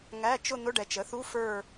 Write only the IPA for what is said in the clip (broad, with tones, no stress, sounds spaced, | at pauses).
ŋ æ˧˥˧ t͡ʃ ʊ˥˧ n̪ ʊ˧˥˧ ɖ ɛ˨ t͡ʃ ə˩˥ θ u˧˥˧ f ə˞˥˧